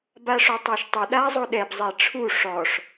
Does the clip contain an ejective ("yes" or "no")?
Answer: no